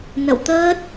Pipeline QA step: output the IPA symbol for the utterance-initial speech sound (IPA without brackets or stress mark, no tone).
n